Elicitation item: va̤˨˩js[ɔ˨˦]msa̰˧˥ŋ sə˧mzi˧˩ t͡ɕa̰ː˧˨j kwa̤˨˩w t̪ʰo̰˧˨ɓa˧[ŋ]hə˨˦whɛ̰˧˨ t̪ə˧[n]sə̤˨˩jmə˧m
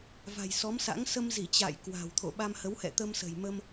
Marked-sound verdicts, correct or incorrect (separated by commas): correct, incorrect, incorrect